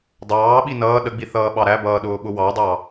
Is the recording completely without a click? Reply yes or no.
yes